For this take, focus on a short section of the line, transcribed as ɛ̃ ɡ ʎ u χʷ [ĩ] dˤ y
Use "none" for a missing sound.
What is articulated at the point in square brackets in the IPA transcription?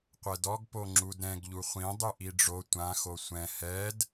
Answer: ĩ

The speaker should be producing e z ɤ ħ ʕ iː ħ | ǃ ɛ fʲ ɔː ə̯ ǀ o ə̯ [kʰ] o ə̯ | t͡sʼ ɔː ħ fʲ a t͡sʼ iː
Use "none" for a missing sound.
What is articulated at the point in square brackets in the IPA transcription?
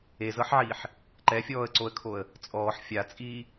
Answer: kʰ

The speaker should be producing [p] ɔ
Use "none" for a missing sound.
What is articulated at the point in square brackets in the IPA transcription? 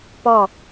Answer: p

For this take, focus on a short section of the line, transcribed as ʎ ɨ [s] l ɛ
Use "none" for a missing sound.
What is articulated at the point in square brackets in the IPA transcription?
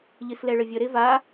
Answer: s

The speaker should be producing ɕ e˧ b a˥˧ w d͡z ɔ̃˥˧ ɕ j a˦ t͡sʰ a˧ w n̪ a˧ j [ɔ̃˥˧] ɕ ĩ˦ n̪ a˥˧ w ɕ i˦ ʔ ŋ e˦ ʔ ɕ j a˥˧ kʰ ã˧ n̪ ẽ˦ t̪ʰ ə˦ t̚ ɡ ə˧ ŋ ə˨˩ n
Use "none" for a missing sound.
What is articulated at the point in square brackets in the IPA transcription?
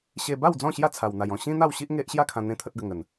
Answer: ɔ̃˥˧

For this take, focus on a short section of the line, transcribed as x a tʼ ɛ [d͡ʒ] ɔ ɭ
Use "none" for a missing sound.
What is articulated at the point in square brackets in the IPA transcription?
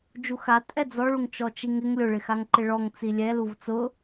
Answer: d͡z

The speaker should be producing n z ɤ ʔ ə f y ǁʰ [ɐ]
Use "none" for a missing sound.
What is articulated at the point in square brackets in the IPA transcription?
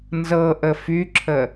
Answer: ə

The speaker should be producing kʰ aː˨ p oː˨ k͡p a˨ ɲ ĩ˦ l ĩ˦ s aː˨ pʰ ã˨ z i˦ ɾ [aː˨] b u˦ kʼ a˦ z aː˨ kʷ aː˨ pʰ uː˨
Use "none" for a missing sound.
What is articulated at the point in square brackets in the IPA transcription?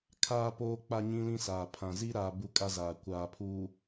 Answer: aː˨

